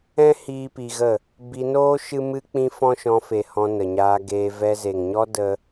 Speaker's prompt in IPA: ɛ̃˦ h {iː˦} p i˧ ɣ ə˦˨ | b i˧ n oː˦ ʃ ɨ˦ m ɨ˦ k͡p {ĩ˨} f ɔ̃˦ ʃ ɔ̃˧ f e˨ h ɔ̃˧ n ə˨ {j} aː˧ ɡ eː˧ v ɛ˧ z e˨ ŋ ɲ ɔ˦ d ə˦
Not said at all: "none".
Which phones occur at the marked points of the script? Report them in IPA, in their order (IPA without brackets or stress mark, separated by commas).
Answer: iː˦, ĩ˦, ɲ